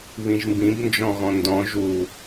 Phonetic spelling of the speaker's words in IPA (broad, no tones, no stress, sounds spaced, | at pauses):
β ĩ ʒ m b ĩ b n d͡ʒ ɔ̃ ɣ ɔ̃ n d ɔ̃ ʒ u